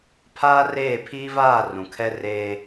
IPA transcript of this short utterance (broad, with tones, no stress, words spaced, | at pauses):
pʰaː˦reː˦˨ pʰiː˦vaː˦˨ rũ˨kʰɛ˦ reː˦